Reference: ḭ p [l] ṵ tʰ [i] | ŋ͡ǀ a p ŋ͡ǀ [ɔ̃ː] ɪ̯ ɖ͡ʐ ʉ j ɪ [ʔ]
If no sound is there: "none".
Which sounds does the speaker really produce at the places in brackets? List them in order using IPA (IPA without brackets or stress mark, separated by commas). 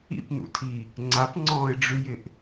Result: n, i, ɔ̃ː, ʔ